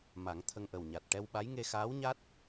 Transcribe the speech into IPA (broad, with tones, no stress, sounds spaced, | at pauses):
m a˨˩˦ ŋ t̪ʰ ə˧ ŋ ʔ ə˨˩ w ɲ a˨˩ t̚ ʈ ɛ˧ w ɓ a˧˥ j ŋ e˧ x aː˧˥ w ɲ a˦˥ t̚